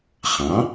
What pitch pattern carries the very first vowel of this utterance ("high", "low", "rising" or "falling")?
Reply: rising